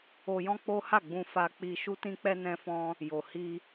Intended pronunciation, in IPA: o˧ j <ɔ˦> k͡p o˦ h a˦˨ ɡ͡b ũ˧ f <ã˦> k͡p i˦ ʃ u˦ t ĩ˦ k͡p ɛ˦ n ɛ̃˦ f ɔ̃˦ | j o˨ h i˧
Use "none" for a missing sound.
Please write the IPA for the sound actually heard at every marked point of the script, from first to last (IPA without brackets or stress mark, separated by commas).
ɔ̃˦, a˦